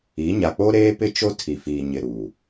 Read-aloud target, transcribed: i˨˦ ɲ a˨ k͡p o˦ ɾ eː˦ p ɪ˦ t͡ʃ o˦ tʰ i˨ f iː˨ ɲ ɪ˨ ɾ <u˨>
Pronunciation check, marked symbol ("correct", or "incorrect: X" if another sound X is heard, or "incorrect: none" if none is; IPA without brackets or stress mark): correct